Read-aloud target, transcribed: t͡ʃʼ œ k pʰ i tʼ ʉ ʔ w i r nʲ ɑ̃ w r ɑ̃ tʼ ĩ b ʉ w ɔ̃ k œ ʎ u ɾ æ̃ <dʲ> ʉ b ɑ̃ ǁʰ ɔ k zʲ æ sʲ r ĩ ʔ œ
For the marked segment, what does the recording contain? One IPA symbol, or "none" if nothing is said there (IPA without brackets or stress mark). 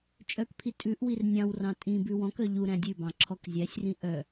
dʲ